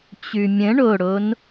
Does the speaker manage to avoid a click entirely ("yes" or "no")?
yes